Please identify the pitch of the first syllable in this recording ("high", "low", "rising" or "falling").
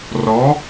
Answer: rising